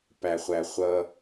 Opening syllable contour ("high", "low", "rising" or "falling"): low